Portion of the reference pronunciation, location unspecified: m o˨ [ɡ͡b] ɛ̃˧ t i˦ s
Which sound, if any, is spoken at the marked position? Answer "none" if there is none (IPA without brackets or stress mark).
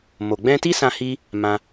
ɡ͡b